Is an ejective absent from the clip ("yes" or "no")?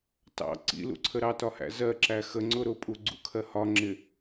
no